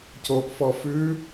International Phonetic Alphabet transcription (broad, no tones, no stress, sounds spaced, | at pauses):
c o ʔ f ɔ f ʉ